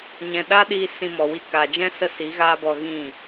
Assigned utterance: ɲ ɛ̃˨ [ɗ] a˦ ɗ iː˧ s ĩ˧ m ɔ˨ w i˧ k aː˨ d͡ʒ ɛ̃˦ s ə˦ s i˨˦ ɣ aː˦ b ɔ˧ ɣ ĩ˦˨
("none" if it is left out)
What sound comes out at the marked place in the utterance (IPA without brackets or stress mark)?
ɗ